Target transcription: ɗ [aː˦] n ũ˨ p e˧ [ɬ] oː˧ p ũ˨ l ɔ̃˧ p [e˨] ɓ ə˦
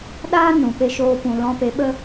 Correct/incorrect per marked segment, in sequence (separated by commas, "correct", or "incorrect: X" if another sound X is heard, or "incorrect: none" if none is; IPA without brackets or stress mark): correct, incorrect: ʃ, incorrect: e˨˦